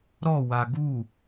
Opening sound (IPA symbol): ɾ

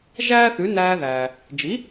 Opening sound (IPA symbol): ʒ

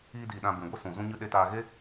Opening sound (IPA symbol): iː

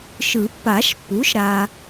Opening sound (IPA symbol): ʃ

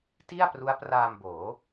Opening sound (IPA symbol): t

